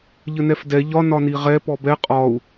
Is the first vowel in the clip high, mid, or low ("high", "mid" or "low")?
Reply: mid